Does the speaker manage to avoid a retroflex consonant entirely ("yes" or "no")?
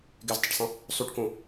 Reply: no